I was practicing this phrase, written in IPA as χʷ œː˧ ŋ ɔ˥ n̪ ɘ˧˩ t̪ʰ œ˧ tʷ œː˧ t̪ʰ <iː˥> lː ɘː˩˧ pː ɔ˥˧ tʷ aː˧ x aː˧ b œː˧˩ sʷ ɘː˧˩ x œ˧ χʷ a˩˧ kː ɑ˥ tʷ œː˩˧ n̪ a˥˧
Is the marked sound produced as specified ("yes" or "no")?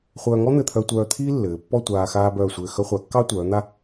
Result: yes